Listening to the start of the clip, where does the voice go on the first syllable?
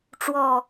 low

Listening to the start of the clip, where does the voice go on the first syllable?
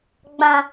low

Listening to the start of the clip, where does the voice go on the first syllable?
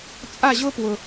falling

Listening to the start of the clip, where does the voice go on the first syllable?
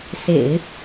low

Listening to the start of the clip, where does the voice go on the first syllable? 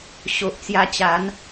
low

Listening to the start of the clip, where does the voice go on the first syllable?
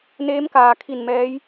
rising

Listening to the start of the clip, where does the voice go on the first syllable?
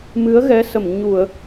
rising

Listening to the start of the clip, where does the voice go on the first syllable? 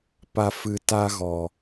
high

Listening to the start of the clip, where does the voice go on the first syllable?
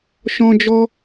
high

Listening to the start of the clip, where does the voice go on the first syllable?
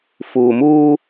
low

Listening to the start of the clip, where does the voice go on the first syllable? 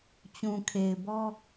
low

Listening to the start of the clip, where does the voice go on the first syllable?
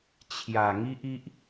low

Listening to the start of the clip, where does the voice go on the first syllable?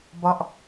falling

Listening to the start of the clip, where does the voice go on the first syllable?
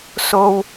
high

